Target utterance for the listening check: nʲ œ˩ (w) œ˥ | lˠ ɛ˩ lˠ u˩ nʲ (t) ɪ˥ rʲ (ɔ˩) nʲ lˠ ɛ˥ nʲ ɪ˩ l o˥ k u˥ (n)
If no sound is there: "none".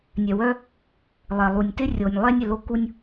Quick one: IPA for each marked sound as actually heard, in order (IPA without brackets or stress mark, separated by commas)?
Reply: w, t, o˩, nʲ